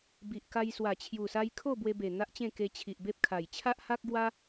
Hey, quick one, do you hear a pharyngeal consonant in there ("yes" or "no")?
no